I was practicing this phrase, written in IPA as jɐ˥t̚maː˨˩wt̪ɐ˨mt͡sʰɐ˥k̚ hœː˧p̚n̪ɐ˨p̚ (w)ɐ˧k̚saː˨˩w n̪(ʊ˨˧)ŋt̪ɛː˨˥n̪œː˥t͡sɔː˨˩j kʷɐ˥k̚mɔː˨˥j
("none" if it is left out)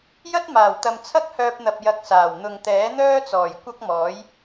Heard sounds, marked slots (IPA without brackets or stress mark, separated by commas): j, ʊ˨